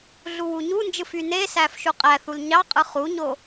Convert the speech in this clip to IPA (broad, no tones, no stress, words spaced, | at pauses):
ɮuwuɲund͡ʒɯf ynesæf ʃuqʼæθul ɲɑqʼɯ χuɲo